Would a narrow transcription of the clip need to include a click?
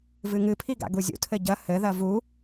no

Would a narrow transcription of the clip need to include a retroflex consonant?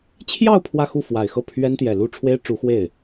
yes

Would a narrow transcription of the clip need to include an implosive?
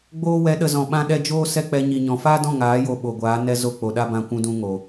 yes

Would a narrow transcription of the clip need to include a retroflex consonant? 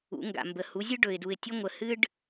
yes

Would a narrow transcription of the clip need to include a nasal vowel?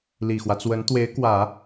no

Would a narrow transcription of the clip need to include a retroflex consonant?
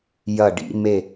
yes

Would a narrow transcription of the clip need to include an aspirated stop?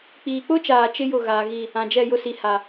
no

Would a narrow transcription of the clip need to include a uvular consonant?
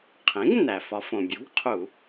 yes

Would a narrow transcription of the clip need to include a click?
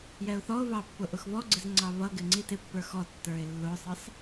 yes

